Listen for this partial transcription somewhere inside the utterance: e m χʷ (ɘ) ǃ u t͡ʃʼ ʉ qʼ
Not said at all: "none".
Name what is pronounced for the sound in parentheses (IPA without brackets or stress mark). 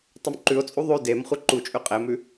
e